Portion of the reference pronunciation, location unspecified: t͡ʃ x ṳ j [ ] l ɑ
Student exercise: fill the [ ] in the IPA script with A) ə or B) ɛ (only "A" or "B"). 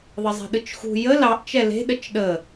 A